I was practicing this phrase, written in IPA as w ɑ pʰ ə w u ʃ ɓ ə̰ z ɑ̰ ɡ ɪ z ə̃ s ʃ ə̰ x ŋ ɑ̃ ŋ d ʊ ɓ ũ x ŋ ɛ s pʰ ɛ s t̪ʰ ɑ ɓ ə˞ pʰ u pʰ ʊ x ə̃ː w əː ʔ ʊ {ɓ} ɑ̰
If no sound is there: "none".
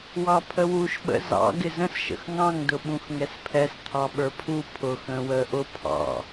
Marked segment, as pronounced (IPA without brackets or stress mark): pʰ